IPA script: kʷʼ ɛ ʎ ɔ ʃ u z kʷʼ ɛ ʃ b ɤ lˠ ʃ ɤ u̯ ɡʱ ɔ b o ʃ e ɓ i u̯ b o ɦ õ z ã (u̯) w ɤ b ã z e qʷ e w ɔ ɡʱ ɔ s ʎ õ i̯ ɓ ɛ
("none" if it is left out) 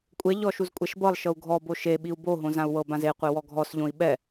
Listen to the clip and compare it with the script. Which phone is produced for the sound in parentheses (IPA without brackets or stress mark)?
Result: u̯